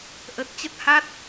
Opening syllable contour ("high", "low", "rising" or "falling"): low